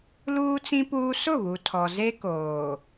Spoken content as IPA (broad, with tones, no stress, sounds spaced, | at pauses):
l uː˦ t͡s ĩ˦ p uː˦ s ʊ˦˨ β u˨ tʰ ɔ˨ z e˦ k oː˨